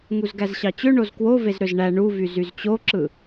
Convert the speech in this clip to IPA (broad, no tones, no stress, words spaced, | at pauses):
ŋuzɡæzɕɑt͡ɕø ɳozkwo vezɾøzɳæ ɳuvy zyzt͡ɕoǁɯ